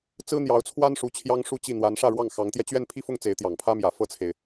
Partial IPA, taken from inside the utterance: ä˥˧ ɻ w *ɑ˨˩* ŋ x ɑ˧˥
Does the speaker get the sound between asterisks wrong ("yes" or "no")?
yes